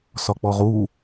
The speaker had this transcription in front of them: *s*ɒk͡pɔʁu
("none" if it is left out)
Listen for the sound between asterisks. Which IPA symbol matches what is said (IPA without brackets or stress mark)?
s